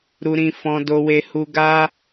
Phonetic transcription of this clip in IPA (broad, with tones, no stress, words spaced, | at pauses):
ɾu˧ɾĩ˧ fɔ̃˧ do˧ we˦hu˦ ɡa˦